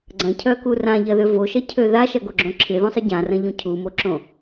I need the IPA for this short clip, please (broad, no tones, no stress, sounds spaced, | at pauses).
ɡ͡ǀ ɐ̃ cʰ œ k u r ã ʎ ɐ ð ø v o ʃ ɐ cʰ ø ð a ʃ ɐ ɡ o ɡ͡ǁ õ ǁʰ ɪ ð õ sˤ ɪ ɟ ã r ɐ̃ ʎ ũ cʰ u m o ǁ õ